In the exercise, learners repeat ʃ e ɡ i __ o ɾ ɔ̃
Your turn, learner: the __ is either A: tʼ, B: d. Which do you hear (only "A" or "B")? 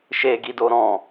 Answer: B